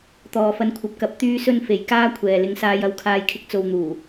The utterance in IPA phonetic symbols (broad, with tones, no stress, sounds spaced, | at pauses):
t̪ ɔː˨ f ɐ˧ n kʷʰ ɐ˨ p̚ k ɐ˨˥ p̚ t̪ yː˥ s ɵ˥ n f e˨ j k aː˥ kʷʰ ɛː˨ l ɪ˨ ŋ s aː˧ j ɐ˧ w kʰ aː˧ j kʰ ɪ˧ k̚ t͡s o˨ w n̪ uː˨˩